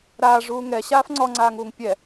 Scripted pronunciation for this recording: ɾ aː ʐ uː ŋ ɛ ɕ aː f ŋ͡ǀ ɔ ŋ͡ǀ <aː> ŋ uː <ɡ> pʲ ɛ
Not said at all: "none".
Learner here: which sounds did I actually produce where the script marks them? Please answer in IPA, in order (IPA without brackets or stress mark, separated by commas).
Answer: aː, ŋ